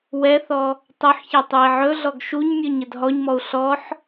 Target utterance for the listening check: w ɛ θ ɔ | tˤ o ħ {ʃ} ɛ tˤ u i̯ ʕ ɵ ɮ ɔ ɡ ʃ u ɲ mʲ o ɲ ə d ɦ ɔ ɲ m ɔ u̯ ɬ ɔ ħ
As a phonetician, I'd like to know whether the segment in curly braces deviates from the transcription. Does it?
yes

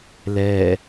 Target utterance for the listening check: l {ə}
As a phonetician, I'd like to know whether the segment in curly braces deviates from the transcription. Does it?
yes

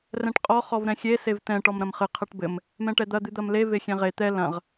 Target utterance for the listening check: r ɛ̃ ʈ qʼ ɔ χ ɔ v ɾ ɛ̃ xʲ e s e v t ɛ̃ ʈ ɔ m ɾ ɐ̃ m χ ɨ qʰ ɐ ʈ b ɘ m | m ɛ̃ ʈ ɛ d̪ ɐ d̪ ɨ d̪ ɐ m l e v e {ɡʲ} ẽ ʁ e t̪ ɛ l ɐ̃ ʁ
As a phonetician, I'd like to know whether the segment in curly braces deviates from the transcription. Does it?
yes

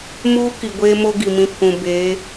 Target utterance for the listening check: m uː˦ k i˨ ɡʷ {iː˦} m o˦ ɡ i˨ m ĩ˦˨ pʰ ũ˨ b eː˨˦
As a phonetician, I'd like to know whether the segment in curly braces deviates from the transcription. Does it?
yes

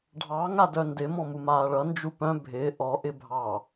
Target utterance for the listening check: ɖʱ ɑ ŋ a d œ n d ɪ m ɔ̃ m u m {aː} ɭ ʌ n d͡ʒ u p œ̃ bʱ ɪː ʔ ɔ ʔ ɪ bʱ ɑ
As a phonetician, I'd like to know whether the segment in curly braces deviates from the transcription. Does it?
no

